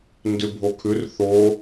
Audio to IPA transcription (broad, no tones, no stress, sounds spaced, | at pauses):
n d ʉ bʱ o kʰ ʉ r θ o